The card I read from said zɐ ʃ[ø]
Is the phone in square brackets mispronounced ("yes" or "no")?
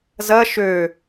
no